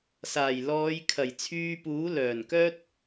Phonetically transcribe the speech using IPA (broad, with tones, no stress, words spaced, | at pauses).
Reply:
saː˨˩jlɔː˨˧jkʰɐ˨˩j t͡sʰyː˧puː˨˥lœː˨˩nkœː˥t̚